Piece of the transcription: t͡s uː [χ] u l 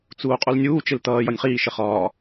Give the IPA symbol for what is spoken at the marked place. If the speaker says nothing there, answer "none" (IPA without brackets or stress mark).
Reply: qʼ